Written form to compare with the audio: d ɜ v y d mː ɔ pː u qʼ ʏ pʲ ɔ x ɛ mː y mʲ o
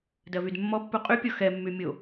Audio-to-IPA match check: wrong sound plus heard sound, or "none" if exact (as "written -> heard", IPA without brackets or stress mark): ʏ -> y